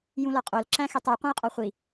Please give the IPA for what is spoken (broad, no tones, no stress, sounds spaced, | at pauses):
j ũ l ɒ qʼ o l ǁ æ̃ x e tˤ u qʷ ẽ j qʼ ɒ χʷ i